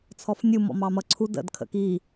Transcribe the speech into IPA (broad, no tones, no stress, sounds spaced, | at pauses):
t͡sʰ ɔ f nʲ u m ɔ̰ m ɑ m ʌ ǀʰ u d ə̰ d kʰ ə̰ k i